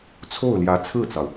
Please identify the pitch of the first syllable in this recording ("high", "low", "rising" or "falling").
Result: falling